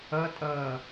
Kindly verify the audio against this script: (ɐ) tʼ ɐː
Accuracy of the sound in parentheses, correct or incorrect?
correct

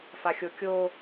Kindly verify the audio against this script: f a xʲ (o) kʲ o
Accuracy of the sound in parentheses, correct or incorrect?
correct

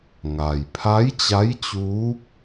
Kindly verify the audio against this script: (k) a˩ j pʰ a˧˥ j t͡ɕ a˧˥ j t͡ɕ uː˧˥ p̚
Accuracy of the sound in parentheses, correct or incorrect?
incorrect: ŋ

